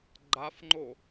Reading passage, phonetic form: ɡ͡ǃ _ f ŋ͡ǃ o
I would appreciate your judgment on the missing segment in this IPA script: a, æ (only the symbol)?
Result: a